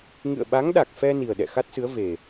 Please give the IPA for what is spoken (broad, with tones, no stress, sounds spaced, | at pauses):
ŋ ɨ̰˧˨ ə̯ ɓ a˨˦ ŋ ɗ a˨˩ k̚ f ɛ˧ n i˨˩ ə̯ ɗ ɛ̰˧˨ x a˦˥ t̚ s ɨ˨˦ ə̯ v e˨˩